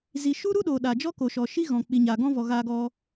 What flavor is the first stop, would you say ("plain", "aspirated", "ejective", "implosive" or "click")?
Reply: implosive